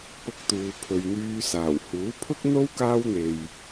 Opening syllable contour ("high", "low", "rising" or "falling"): high